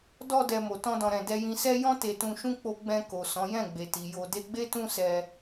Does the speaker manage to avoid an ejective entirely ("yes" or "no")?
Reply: yes